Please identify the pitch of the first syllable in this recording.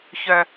high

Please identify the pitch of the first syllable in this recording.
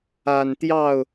low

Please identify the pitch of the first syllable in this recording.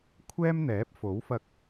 high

